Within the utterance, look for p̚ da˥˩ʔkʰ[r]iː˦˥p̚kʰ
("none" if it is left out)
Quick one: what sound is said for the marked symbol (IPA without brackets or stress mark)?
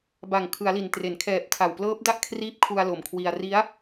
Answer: r